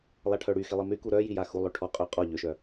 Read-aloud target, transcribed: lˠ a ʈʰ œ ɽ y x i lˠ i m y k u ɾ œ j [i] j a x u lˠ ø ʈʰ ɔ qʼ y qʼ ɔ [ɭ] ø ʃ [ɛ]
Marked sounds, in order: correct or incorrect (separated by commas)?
correct, incorrect, incorrect